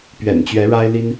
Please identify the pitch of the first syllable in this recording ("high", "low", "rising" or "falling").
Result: low